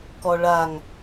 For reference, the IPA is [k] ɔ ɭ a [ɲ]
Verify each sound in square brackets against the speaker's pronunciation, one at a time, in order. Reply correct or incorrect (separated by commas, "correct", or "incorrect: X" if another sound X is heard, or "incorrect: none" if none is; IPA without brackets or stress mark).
correct, incorrect: ŋ